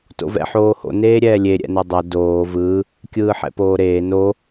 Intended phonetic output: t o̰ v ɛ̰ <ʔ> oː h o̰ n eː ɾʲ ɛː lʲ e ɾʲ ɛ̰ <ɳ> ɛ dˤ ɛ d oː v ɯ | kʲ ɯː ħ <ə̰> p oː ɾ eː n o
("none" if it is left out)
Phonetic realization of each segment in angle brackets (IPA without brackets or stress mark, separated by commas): ħ, n, ɛ̰